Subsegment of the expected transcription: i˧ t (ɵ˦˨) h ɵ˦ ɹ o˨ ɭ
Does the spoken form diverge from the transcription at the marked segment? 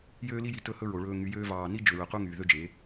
no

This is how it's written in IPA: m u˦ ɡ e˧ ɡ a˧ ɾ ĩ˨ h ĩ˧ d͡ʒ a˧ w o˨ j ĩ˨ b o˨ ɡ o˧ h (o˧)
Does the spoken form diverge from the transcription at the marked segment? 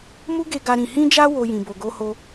no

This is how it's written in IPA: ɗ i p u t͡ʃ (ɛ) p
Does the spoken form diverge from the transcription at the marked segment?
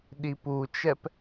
no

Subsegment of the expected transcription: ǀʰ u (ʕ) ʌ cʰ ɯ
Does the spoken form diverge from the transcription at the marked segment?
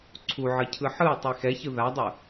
no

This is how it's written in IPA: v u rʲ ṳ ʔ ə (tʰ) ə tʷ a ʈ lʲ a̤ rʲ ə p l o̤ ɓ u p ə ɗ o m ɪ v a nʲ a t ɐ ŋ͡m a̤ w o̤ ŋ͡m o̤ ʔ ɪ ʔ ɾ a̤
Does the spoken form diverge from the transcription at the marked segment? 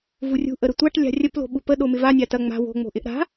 yes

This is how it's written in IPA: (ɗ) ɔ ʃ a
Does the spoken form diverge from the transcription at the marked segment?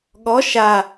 yes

